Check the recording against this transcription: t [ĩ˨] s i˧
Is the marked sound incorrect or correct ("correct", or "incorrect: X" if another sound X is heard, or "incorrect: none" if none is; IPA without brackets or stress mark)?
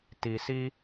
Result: incorrect: i˨